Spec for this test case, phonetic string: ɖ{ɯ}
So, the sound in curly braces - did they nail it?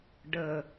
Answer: no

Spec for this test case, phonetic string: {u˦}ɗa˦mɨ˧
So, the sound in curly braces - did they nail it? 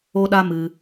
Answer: no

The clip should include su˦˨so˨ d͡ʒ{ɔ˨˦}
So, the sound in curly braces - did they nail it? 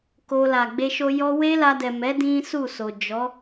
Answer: yes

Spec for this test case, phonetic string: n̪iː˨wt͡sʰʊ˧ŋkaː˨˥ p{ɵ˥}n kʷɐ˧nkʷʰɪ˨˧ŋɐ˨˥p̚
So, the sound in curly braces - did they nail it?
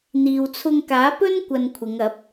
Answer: yes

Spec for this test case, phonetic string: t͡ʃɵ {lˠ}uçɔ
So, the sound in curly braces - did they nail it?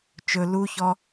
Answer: no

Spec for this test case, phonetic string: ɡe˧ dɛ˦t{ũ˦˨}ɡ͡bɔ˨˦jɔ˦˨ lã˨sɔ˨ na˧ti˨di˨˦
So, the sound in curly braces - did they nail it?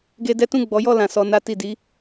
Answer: yes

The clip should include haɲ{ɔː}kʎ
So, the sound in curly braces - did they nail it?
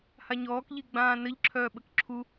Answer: yes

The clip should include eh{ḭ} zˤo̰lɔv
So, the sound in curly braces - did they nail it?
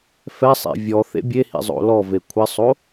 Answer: yes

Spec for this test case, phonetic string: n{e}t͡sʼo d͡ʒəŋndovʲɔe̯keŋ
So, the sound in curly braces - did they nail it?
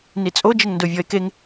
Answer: no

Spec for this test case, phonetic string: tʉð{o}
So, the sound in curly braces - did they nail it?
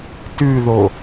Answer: yes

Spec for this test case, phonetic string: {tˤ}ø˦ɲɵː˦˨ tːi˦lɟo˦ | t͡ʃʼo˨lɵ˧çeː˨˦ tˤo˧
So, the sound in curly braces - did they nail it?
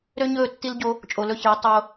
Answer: no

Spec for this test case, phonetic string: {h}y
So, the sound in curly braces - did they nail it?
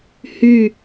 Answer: yes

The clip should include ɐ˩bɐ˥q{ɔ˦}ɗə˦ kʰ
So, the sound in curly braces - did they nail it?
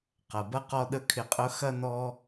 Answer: yes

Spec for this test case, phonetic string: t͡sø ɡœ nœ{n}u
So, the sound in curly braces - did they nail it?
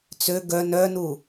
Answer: yes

